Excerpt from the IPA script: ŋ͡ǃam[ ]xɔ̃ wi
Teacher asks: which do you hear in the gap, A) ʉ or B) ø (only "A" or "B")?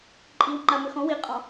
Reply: B